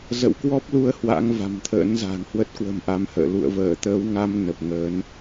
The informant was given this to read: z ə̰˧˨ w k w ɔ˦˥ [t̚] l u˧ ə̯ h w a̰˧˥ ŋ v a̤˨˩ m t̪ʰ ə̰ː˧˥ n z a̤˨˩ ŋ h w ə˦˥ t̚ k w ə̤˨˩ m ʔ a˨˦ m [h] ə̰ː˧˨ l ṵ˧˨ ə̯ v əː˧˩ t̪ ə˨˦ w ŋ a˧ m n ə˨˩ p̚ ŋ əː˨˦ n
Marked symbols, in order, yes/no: no, yes

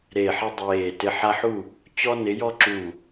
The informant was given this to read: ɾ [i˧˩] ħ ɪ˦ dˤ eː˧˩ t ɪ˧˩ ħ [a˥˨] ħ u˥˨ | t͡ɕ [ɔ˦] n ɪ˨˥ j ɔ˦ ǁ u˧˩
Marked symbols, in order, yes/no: no, no, yes

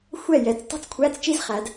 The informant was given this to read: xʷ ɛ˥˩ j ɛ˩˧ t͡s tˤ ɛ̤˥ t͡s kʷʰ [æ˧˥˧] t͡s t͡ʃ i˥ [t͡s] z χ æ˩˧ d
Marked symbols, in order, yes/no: yes, no

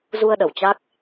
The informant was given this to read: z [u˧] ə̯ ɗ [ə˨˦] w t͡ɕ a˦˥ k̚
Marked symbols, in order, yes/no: yes, no

